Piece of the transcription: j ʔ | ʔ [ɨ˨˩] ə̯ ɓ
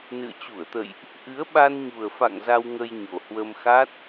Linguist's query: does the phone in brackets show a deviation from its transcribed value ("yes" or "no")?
yes